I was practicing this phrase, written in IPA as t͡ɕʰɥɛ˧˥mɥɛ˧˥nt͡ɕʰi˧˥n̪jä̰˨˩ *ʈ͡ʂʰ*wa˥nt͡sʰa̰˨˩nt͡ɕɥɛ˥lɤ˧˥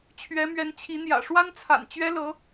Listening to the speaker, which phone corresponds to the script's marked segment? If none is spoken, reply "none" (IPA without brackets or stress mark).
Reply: ʂ